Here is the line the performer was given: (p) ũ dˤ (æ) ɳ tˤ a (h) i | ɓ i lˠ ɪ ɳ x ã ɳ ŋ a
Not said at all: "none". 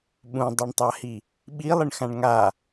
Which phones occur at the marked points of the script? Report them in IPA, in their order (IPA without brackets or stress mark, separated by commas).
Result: ɓ, æ, h